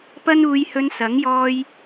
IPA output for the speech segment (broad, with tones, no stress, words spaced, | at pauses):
pɐ˥nuː˧jhɵ˧n sɐ˨˥ŋ jɔː˧j